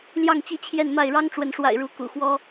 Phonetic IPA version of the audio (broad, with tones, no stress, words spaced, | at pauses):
ljɑ˥˨ŋt͡ɕi˥˨t͡ɕʰjɛ˥˨nma˥˨ɪ̯ ɻɑ˦ŋʈ͡ʂwə˨˦nʂwa̰˨˩ɪ̯ ɻu˨˦ kṵ˨˩xwɔ˦